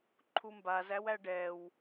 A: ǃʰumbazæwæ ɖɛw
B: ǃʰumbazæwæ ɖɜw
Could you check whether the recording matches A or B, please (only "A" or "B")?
A